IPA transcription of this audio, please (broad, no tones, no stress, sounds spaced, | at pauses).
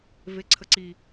v e ǀʰ ə ǀ i